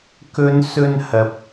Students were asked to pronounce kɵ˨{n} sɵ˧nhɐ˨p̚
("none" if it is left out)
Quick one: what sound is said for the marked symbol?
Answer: n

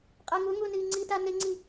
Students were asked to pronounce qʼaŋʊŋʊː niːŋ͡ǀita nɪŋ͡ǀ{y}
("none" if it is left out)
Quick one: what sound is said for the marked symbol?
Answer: i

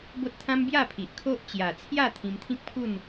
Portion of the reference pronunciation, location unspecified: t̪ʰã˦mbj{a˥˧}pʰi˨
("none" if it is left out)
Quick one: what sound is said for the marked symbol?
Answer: a˥˧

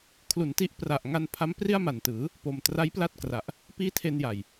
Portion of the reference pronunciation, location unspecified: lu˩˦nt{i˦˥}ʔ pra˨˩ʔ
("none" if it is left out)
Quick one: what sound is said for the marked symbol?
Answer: i˦˥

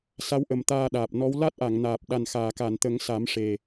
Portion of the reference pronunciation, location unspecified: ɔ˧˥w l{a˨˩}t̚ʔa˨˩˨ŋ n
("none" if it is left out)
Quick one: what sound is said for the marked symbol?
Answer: a˦˥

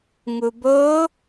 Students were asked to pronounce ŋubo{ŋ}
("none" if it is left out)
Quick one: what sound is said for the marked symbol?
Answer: none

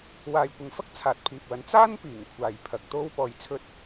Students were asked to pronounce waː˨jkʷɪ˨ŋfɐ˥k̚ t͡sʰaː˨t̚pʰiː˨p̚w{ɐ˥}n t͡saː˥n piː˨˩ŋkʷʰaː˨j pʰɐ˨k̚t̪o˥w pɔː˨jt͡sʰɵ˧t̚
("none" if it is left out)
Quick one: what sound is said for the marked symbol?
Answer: ɐ˨˥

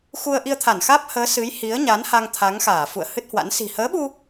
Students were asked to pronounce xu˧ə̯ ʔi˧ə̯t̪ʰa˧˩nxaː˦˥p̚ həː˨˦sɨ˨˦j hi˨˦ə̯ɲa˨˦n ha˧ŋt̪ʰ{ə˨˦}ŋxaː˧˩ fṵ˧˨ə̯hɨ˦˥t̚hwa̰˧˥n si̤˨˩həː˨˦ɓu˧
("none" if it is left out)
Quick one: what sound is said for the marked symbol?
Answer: a˨˦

